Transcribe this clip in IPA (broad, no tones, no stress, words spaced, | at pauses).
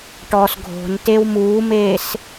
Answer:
ʈɔːsɡʱo̤n tewmuːmeːs